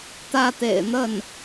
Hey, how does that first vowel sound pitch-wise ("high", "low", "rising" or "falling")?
falling